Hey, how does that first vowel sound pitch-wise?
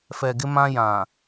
low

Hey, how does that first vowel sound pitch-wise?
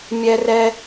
high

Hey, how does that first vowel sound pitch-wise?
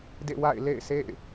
falling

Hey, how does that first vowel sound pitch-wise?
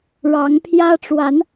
rising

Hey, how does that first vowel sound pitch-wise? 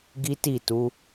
high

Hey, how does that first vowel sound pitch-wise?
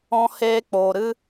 high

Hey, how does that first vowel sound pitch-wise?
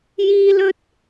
high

